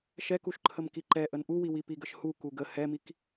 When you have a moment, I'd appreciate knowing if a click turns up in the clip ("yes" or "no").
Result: yes